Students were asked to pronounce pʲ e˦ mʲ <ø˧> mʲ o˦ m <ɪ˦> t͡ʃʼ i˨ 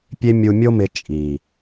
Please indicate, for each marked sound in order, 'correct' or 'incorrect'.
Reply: incorrect: u˧, incorrect: ɪ˧

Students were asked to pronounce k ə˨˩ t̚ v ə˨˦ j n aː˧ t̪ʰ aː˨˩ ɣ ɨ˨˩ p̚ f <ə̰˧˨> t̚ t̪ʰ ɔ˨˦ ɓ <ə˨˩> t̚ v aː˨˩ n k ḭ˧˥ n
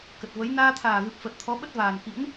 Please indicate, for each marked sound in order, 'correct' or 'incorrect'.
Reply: incorrect: ə˨˩, incorrect: ə˦˥

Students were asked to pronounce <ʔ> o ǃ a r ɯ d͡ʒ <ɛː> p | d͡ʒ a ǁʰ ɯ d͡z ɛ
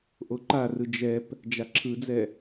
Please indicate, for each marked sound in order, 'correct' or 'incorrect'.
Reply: correct, incorrect: ɛ

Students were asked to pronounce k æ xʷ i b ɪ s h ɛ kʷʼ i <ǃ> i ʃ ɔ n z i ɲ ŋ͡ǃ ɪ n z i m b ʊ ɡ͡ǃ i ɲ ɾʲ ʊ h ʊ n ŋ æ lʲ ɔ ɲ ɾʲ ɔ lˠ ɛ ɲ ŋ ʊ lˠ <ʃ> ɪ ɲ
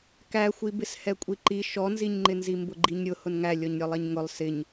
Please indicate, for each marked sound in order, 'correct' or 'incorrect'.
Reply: correct, incorrect: s

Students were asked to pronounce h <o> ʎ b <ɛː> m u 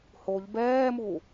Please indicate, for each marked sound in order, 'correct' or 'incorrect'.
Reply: correct, correct

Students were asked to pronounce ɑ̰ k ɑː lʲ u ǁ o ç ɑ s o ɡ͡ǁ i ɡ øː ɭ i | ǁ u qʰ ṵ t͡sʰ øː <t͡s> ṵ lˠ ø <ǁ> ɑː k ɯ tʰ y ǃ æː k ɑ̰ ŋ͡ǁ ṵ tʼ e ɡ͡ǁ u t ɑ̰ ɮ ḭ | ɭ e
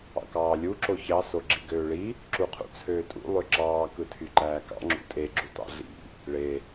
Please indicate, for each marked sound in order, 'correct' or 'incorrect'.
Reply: incorrect: tʼ, correct

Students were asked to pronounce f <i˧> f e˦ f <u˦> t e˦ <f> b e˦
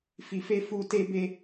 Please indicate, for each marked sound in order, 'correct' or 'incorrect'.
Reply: correct, correct, incorrect: none

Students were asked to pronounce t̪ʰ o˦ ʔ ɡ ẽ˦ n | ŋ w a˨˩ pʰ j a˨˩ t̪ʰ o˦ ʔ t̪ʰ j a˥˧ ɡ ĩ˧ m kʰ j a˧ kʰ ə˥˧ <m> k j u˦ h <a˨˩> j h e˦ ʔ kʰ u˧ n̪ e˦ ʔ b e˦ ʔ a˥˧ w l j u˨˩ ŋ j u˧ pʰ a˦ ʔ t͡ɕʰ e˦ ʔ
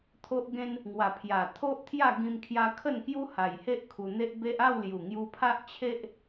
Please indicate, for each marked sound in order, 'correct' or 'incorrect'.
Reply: incorrect: n, correct

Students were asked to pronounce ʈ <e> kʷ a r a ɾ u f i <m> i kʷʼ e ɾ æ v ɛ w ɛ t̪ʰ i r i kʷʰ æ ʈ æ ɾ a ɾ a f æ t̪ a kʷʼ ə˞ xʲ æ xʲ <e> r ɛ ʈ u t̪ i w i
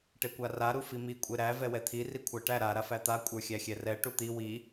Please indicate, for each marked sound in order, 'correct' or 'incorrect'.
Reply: correct, correct, incorrect: ɛ

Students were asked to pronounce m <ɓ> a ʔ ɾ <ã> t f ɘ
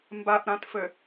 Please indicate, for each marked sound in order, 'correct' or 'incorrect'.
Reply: incorrect: b, correct

